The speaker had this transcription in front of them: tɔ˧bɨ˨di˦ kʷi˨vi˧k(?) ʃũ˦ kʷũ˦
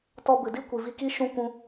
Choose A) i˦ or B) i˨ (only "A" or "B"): A